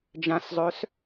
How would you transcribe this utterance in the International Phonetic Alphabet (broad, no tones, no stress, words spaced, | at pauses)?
d͡ʒãszˤœs